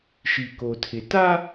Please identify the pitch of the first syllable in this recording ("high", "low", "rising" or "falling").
low